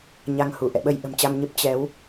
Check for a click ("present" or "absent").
absent